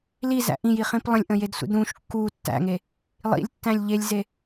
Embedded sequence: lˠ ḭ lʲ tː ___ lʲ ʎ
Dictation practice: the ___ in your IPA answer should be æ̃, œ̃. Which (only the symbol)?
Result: æ̃